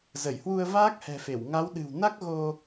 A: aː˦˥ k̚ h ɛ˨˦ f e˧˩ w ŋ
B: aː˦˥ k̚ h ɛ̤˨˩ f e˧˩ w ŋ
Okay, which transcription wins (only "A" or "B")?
B